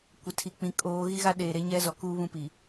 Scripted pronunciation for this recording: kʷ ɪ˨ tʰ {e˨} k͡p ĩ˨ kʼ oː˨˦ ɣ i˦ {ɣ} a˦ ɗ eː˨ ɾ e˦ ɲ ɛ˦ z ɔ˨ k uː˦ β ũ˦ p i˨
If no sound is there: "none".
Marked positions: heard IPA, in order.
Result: i˨, ɣ

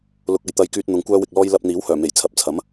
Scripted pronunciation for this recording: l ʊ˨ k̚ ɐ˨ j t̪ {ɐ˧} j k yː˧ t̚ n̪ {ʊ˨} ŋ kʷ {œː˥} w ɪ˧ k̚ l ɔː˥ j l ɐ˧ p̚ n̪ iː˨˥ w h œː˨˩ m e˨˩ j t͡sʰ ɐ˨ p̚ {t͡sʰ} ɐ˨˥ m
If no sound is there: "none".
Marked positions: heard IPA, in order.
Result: ɐ˧, ʊ˨, œː˥, t͡sʰ

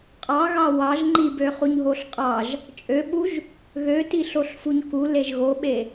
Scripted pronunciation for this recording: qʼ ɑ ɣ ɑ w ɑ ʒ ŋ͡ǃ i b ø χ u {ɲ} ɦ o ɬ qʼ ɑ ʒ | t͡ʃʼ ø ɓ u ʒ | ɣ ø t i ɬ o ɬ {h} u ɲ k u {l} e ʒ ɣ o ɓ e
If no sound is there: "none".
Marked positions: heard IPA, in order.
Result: ɲ, f, l

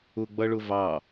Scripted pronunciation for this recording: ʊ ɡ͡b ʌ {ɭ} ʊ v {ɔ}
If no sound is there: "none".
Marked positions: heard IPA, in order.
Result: ɭ, ɑ

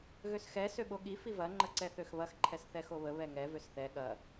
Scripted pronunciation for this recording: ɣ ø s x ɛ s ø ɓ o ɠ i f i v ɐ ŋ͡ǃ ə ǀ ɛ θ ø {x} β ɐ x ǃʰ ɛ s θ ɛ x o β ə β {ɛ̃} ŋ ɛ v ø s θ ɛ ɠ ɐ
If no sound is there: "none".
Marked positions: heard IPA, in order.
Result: x, ɛ

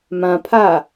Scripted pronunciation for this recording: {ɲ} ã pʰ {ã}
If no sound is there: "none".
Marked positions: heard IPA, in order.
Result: m, a

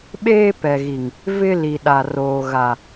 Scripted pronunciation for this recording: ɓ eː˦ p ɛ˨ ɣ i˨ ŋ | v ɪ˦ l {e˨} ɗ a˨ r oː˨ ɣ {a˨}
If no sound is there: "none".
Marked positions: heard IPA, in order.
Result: i˨, a˨

